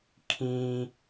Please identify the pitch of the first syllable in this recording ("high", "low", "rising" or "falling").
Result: low